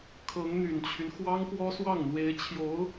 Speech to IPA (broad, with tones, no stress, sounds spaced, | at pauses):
kʰ ɤ˧˥ ŋ n̪ y˨˩ n t͡ɕʰ y˦ n x w ɑ˥ ŋ p w ɔ˥ s w ɑ˥˩ ŋ n̪ w e˧˥ ɪ̯ t͡ɕʰ j o˧˥ ʊ̯